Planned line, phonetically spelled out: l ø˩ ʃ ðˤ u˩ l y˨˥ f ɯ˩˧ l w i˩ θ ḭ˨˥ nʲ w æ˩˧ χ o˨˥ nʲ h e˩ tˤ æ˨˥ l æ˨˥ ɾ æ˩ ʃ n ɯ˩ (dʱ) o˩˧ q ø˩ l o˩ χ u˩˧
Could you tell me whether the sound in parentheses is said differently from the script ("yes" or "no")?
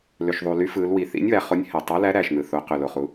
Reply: yes